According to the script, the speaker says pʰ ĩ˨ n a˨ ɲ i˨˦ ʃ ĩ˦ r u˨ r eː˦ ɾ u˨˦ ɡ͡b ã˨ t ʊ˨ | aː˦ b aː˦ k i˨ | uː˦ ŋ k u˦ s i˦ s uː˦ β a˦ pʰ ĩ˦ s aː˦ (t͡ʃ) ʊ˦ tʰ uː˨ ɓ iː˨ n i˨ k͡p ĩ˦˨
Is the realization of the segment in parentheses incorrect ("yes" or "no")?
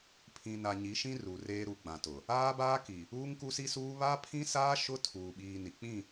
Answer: yes